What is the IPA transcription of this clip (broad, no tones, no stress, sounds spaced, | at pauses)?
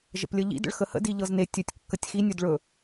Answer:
ʒ ə̰ p lʲ ə ʎ ḭ d ə̰ ɭ x ə h ə̰ d i ʎ ɤ z n e tʲ ɵ tʲ kː ə tʲ x i nʲ ɵ d ɭ ɵ